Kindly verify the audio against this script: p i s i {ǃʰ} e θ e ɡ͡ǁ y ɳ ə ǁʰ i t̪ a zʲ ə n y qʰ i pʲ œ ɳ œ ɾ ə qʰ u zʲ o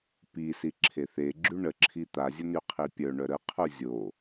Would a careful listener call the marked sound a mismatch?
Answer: yes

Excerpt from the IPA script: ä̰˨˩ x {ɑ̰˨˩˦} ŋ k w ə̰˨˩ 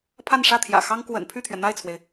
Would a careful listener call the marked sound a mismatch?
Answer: yes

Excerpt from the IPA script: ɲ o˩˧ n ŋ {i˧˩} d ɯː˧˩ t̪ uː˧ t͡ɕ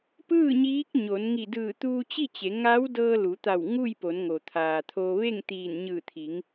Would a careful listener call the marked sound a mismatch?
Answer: no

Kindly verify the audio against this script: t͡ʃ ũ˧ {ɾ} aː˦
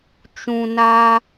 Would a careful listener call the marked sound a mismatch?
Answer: yes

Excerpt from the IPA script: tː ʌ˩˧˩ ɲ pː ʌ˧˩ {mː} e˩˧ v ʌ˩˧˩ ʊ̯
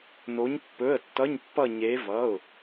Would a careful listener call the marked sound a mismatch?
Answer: yes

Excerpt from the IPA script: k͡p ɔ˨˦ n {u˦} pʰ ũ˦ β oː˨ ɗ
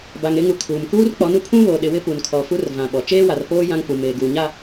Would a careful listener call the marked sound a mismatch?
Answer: no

